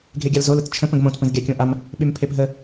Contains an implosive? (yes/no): yes